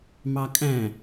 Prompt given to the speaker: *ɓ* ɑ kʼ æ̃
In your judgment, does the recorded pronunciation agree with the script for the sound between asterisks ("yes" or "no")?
no